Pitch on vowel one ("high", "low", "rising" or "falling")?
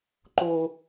high